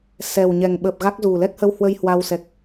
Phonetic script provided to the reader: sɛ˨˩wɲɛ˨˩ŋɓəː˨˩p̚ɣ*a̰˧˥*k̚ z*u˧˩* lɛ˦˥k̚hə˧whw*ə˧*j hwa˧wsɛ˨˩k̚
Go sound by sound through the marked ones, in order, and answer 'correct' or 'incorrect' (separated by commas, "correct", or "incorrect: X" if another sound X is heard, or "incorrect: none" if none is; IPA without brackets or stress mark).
incorrect: a˦˥, incorrect: u˨˩, correct